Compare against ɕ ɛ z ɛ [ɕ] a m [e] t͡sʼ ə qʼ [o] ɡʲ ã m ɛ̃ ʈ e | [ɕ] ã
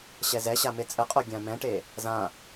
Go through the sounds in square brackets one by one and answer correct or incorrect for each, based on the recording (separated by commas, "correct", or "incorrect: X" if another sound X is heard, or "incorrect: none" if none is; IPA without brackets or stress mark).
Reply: correct, correct, correct, incorrect: z